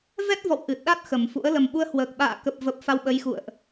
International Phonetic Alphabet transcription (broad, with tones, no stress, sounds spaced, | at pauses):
v ɛ˦˥ t̚ v ɔ̰˧˨ w ʔ ɨ˨˩ t̚ ɗ a˦˥ t̚ x ə˨˩ m f ṵ˧˥ ə̯ l ə˨˩ m ɓ u˧ ə̯ h w əː˨˩ k̚ ɓ a̰ː˧˨ k ə˨˩ p̚ v ə˨˩ p̚ f a˧ w ɓ ə˨˦ j x ṵ˧˨ ə̯ ʔ